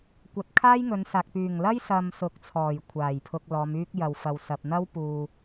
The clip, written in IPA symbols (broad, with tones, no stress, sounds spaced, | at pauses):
kʷ ɐ˨ t̚ kʰ aː˥ j ŋ ɵ˨˧ n s aː˨ k̚ p yː˨˩ ŋ l ɐ˥ j s ɐ˨ m s ʊ˨˥ k̚ t͡sʰ ɔː˨˩ j kʷʰ aː˨˩ j pʰ ʊ˧ k̚ l ɔː˨˧ m yː˥ k̚ j ɐ˨ w f ɐ˨ w s ɐ˨ p̚ n̪ ɐ˥ w p uː˨